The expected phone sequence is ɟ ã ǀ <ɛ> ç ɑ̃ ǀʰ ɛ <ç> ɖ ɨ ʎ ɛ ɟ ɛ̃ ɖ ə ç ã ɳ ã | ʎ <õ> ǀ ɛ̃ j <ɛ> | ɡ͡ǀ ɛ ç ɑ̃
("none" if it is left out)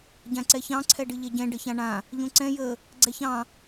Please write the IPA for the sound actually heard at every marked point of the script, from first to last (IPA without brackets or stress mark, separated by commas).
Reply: ɛ, none, õ, ə